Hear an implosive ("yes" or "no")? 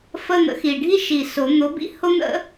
no